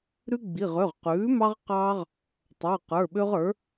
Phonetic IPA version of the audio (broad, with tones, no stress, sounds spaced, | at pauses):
ɾ ʉ˦ ɡ͡b i˩˧˩ ʁ ø˩˧˩ ʁ q ʉː˩˥ m ɑ˦ ʁ q ɑː˦ ʁ | tˤ ə˞˩˧˩ q ə˞˩˧˩ ɓ ø˦ ʁ ə˞˩˥